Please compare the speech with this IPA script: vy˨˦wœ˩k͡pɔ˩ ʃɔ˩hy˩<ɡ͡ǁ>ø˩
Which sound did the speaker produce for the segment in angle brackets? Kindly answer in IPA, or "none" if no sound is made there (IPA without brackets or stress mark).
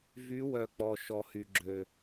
ɡ͡ǁ